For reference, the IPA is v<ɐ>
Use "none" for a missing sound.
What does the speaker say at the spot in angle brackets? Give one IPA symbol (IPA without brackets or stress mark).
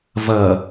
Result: ɐ